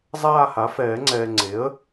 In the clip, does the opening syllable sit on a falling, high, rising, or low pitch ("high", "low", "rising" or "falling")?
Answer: falling